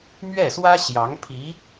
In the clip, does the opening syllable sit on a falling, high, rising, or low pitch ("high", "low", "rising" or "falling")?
falling